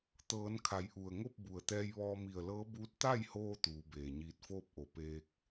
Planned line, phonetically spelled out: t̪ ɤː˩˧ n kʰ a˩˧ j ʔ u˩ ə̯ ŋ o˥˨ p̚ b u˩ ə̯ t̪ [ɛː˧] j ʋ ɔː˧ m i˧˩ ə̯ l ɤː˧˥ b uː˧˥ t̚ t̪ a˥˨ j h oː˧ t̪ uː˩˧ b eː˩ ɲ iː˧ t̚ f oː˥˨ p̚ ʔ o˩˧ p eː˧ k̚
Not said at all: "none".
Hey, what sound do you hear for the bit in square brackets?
ɛː˧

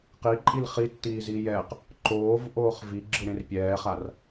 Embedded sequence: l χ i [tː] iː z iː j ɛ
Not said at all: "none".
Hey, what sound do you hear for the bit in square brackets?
tː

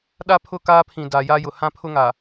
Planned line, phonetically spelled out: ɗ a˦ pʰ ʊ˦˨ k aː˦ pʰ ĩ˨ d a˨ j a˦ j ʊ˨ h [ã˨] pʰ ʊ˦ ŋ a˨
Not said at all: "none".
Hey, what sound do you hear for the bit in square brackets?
ã˦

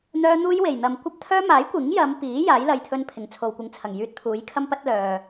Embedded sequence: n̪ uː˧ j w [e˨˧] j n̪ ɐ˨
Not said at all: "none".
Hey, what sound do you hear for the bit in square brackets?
e˨˩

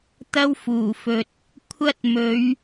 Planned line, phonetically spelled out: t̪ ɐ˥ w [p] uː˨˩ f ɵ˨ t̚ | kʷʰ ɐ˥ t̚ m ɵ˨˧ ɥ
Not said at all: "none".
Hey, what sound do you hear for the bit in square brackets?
f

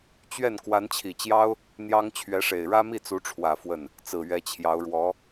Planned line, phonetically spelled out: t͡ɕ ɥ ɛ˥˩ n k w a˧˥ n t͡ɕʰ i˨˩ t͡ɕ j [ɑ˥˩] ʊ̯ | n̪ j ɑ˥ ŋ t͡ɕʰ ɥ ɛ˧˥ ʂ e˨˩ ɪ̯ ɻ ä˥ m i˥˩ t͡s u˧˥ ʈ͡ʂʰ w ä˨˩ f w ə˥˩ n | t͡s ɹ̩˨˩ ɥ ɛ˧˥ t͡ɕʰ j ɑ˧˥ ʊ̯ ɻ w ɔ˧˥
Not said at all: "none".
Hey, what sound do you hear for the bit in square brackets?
ɑ˥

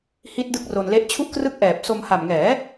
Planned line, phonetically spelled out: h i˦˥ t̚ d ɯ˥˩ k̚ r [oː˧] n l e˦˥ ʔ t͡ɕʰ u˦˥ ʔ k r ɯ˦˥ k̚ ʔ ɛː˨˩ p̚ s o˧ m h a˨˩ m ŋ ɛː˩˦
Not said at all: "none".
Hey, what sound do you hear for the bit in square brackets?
o˧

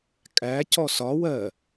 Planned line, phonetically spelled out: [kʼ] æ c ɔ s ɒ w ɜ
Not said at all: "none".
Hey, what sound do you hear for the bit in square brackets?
kʼ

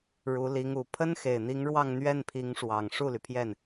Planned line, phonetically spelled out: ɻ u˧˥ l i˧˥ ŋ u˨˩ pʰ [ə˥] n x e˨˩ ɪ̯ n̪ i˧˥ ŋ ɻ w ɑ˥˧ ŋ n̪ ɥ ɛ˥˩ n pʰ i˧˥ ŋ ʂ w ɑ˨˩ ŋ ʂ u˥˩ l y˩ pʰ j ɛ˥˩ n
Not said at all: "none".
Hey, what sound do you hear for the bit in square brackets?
ə˥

